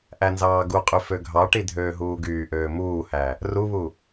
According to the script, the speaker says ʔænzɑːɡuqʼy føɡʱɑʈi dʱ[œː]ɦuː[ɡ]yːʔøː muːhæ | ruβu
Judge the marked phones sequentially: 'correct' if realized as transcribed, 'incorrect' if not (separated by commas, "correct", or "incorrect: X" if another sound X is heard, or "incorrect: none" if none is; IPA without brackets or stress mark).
incorrect: øː, correct